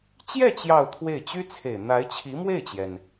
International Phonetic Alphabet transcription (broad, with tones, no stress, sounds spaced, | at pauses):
t͡ɕ j ɛ˥˧ t͡ɕ j ɑ˥˧ ʊ̯ t̪ʰ w e˥˩ ɪ̯ t͡ɕ y˥ t͡sʰ e˨˩ ɪ̯ n̪ a˧˥ ɪ̯ t͡ɕʰ i˧˥ m w e˥˩ ɪ̯ t͡ɕ j ɛ˩ n